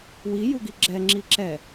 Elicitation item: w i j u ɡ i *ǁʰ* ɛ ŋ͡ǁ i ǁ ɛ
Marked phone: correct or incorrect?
incorrect